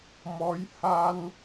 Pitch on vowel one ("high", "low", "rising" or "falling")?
rising